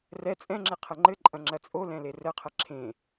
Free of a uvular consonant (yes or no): no